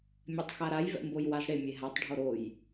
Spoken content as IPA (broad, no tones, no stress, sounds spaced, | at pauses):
mʲ œ tˤ x a ɾ a j v ɛ̰ m b o j w a z ɽ e mʲ e ɦ a tˤ ɖʱ o ɾ o j